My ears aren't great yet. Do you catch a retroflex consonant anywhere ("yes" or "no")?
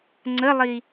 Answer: no